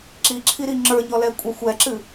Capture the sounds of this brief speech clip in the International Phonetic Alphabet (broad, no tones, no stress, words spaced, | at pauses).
ǁiǁʰiɾi ŋ͡ǁə˞ɲɔlɛkʷʼa xʷɛǁɨ